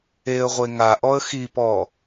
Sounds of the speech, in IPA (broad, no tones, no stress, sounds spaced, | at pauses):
e ə̯ ʁʷ e ŋ a ʔ ɔ ə̯ x i p ɔ